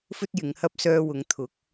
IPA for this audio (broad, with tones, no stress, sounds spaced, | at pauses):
f ɵ˥ t̚ j ɪ˨˧ ŋ h ɐ˥ p̚ s œː˧ w ʊ˨˧ ŋ t̪ʰ ʊ˨˥ k̚